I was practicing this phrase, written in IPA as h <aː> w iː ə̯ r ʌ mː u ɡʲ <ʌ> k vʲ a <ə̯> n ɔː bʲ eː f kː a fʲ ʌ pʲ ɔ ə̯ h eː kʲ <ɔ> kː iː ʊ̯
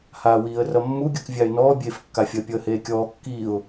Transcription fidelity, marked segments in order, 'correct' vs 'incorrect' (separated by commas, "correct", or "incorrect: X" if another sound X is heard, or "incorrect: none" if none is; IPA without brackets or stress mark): correct, correct, incorrect: ɪ̯, incorrect: ɔː